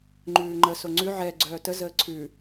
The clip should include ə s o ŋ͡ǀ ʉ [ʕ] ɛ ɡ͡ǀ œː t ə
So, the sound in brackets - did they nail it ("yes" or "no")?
yes